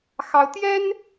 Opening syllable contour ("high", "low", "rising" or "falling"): high